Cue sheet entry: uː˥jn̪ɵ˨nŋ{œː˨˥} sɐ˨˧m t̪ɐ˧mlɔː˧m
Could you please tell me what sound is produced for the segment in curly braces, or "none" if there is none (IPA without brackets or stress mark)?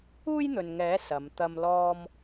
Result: ɛː˨˥